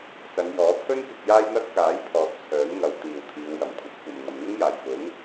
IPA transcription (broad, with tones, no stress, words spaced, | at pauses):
sɐ˨˧njɔː˨˥ pʰɵ˥nkɪ˧k̚ jaː˥jn̪ɐ˥t̚ kaː˨˥jpʰɔː˨t̚ t͡sʰœː˨˥nŋɐ˨˧w t̪iː˨wt̪ʰiː˨˧wjɐ˨˩mkʷʰɐ˨˥t̚ kʷɐ˨mŋɐ˨mŋʊ˥ŋ jaː˨˩jfʊ˨˥ŋ